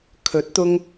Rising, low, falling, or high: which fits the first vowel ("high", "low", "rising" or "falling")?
rising